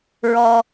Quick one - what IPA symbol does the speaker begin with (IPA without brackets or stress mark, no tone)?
ɹ